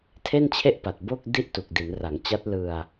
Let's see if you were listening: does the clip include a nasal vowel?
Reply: no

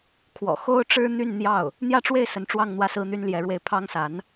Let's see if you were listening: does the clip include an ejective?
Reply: no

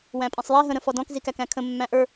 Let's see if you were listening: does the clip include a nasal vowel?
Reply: yes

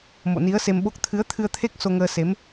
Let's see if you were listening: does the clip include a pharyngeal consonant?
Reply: no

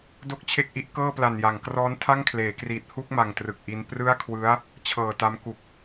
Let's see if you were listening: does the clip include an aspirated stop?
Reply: yes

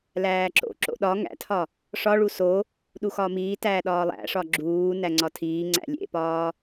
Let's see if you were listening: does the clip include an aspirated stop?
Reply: yes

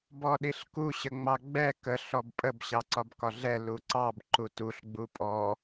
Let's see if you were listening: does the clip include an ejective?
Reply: yes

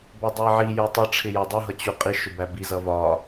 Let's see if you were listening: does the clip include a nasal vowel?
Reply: no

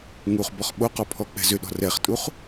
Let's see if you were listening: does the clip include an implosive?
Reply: yes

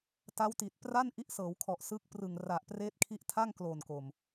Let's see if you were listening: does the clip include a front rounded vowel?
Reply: no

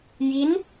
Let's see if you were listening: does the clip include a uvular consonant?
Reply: no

